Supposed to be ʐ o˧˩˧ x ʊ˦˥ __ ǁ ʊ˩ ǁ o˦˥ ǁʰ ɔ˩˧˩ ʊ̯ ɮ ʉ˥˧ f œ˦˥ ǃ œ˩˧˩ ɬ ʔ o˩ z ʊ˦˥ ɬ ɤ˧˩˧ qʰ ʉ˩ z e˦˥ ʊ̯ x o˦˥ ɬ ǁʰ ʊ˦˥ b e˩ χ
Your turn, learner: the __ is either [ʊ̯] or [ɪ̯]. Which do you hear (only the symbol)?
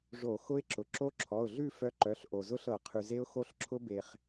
ɪ̯